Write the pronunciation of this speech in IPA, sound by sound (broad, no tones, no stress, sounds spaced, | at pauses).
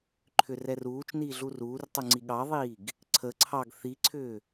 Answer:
ǃʰ ʏ r ɛ r uː t͡ʃ n iː ɮ u r uː r tˤ u ŋ͡ǀ i ɠ ɑ ðˤ iː ɡ | ǀʰ ə ǀʰ ɑ ɡ θ i ǀʰ ʏː